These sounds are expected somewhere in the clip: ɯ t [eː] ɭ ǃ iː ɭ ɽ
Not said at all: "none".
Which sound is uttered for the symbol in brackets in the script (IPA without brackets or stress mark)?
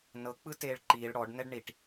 eː